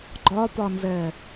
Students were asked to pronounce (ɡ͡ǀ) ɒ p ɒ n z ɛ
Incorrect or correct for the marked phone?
incorrect: ɡ͡ǃ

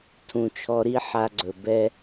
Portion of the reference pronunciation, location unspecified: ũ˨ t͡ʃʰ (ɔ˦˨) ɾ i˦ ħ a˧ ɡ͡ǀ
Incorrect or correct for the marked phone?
incorrect: ɔ˧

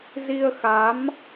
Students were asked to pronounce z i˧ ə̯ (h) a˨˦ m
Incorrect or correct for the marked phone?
incorrect: x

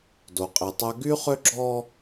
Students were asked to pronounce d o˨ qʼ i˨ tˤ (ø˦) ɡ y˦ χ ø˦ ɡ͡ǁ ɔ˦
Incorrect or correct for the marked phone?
incorrect: œ˦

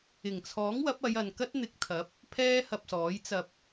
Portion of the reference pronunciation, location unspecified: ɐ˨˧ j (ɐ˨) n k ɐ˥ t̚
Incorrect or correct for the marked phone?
correct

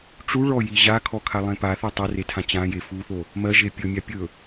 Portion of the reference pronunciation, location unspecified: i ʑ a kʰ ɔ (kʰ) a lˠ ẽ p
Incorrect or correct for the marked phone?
correct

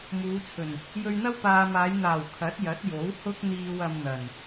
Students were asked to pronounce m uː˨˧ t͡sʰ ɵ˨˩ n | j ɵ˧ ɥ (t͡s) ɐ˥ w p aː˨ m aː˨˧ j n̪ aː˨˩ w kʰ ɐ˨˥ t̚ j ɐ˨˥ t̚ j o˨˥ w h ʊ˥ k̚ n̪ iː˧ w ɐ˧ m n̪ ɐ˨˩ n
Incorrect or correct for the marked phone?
incorrect: n̪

